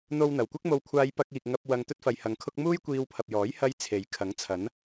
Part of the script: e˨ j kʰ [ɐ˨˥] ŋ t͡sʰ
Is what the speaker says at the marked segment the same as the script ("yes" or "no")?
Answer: yes